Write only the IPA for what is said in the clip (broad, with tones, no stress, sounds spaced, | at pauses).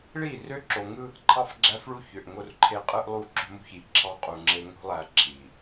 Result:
ɭ i˦˨ r ø˦ ǁ o˨ ŋ ɯ˦ | ǃʰ ɑ˦ f ɡ͡ǁ æ˦ f ɭ u˦ ç ø˨ ʔ ŋ o˦˨ r ǃʰ e˦ qʼ ɯ˦ ʔ lˠ u˦ ǁ o̤˦ m ṳ˦ ç i˨ ǁʰ ɑ˦ qʼ u˨ ŋ͡ǁ e˦ ŋ o̤˦ lˠ æ˨ ǁʰ i˨